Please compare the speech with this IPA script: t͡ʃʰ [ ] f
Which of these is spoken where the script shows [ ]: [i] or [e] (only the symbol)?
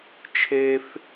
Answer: e